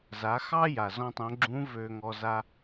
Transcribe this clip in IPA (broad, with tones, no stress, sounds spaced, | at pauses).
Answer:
z a˩˧ x ɑ˥ j a˩ z ɔ̃˥ tˤ õ˧˥ ɡ͡ǁ ũ˧˥ v ø˧ ŋ ɔ˧ z a˥